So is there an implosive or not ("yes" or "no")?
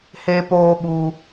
yes